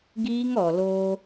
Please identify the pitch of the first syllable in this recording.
high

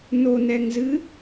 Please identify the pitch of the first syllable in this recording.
low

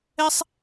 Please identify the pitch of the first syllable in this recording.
high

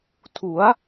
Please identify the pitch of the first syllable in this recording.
rising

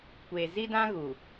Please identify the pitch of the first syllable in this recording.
low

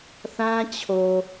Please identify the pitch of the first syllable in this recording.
high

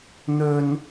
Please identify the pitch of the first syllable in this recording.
high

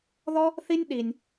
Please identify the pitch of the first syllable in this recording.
high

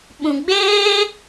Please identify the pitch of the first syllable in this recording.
low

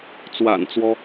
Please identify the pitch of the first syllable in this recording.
low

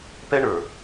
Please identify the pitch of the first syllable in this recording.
high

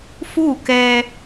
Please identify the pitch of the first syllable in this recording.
falling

